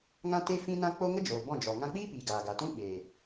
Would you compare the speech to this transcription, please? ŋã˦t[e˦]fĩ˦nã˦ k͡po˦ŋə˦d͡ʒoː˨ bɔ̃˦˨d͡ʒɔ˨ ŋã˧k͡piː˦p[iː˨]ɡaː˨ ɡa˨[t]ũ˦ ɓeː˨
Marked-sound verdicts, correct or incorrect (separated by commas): correct, correct, correct